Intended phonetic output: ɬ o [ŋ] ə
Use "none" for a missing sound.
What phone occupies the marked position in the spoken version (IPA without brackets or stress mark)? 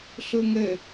ŋ